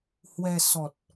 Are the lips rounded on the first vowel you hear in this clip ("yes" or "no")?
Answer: no